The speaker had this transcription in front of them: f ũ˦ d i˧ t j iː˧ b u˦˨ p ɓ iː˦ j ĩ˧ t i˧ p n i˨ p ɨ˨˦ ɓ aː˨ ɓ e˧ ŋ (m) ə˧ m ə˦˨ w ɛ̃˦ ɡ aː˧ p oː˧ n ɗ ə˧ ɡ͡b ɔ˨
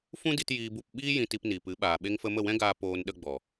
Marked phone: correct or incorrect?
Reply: incorrect